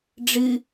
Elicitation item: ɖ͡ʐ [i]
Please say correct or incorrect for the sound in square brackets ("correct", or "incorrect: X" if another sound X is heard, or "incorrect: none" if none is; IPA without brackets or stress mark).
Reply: incorrect: ɨ